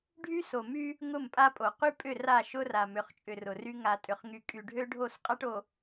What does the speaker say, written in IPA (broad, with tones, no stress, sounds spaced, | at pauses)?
ɖʱ y˦ s o˨ m y˦ | ŋ ʊ˦˨ m pʼ a˦ pʼ o˨ q y˦ pʼ ʏ˦˨ r a˦˨ ʃ ʊ˦ r a˨ m ʏ˨ χ t͡ʃʼ ʏ˨ r ʊ˨ r y˦ ŋ a˨ tʼ ʏ˨ χ ŋ y˨ kʼ y˨ ɖʱ ø˦ ɖʱ o˦˨ s qʼ a˦ ʈ o˨